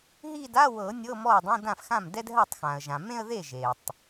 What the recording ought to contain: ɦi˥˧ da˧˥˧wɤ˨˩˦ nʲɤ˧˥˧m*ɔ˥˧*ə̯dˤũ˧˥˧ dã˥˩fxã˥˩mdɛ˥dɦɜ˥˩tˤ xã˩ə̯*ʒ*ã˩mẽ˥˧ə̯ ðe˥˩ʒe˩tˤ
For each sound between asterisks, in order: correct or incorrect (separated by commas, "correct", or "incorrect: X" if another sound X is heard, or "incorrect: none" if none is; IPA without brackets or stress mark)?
incorrect: ɔ˥˩, correct